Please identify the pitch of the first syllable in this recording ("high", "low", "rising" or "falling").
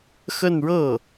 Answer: falling